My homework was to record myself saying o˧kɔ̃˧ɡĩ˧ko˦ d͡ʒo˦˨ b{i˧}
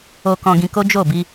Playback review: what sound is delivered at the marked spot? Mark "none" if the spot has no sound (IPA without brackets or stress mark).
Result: i˧